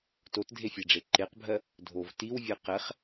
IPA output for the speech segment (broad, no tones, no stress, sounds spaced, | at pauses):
t o t dʱ e fʲ ɛ ɖ͡ʐ e ǃ e q bʱ ɜ | dʱ o v t i w vʲ ɛ q ɛ χ